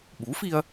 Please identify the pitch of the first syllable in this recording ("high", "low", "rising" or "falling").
rising